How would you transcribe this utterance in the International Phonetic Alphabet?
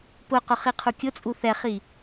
pʊqʊχiqʰu kʲʊ t͡sʼuθɛχi

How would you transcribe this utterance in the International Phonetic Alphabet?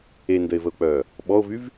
endəe̯vəo̯k͡pœː | ɓɔo̯vyv

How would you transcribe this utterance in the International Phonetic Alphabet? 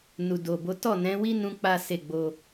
nu˨do˨bo˨˦ tɔ˦˨nɛ̃˨˦wi˦ nũ˦k͡pa˦ se˦˨ɡ͡bo˧

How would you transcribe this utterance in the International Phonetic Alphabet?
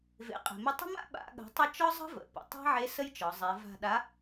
vḛ˩˧qʼe̤˩me˧ tˤə̤˥ma̰˥ ɓa̰˩˧ ɠə̤˩˧tˤʌ˧ t͡ʃɒ˥zˤə̤˥və̰˩ pə̰˩tˤa̤˥ʕe˧˥ sə˥jt͡ʃɒ˩˧ zˤe˩˧ va̤˧ ɗa˧˥

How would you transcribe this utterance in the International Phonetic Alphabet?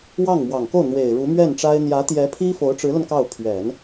wɑ˥˩ŋmwɑ˨˩ŋko˥˩ʊ̯n̪we˨˩ɪ̯ ɻu˧˥mɥɛ˥˩nʈ͡ʂa˥ɪ̯ n̪jä˧˥t̪jɛ˧˥ pʰi˥fo˧˥ʊ̯ʈ͡ʂɻ̩˧˥lə˧n kɑ˥˩ʊ̯ pʰɥɛ˨˩˦n

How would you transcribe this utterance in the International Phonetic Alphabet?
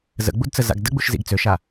zə̰ɡ͡budt͡sə za̰ɡdəɡ͡buʃ zḭɡt͡søʃa

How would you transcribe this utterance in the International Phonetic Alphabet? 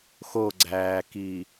xoɡ͡ǀæːki

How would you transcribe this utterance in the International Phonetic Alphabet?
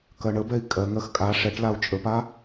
kɜɳəbɛi̯ kʼɜŋɜx kʼa ʂɛʈ lau̯t͡ʃʼəpa

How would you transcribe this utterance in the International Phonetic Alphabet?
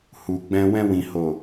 hu˨ɡ͡bɛ̃˧ wɛ̃˧wĩ˨ho˨

